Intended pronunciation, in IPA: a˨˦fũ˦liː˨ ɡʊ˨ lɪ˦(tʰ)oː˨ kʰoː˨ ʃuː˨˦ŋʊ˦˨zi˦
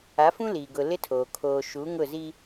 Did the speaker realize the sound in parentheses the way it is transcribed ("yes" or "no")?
yes